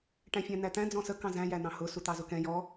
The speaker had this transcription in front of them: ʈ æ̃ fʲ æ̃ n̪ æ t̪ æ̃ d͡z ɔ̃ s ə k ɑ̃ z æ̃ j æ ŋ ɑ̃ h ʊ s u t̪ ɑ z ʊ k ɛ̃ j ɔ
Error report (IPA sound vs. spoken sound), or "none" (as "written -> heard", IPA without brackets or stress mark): ŋ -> n̪